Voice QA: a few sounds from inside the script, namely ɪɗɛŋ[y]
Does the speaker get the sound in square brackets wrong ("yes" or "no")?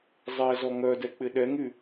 no